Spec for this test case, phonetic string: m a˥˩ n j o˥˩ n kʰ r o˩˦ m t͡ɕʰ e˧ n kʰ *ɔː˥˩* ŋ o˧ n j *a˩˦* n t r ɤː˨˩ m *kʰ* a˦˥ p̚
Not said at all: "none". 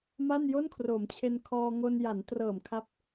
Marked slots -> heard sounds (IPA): ɔː˧, a˩˦, kʰ

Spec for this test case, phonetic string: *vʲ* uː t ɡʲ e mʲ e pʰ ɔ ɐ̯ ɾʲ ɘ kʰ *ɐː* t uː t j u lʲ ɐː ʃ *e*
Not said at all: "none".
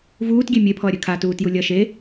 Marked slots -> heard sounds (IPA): v, aː, e

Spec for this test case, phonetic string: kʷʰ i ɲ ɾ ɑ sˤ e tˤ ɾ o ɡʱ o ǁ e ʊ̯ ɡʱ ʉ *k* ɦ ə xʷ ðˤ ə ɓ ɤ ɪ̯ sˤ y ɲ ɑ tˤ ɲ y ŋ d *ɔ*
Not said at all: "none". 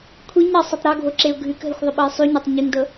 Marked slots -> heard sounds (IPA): k, ɤ

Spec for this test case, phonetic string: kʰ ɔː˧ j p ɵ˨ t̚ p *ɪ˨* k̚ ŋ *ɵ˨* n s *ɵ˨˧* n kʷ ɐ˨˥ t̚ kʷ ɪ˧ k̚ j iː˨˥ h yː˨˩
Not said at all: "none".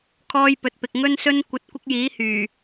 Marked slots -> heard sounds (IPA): ɪ˨, ɵ˧, ɵ˧

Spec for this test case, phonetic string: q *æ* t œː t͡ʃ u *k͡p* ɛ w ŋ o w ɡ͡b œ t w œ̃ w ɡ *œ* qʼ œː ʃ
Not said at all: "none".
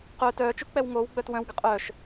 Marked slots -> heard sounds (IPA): œ, k͡p, ə

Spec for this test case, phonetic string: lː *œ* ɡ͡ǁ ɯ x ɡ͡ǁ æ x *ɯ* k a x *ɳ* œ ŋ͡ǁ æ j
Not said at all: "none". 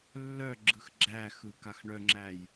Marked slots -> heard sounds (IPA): œ, ɯ, ɳ

